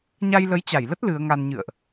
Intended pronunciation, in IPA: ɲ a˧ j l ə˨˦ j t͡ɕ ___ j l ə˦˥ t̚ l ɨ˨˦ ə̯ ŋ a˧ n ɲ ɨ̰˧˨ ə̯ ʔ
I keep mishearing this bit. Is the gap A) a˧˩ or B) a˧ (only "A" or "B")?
A